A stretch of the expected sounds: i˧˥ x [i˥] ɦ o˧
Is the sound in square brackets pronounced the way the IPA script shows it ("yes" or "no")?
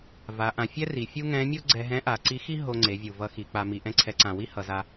yes